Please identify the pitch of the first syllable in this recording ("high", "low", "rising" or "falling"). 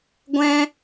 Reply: high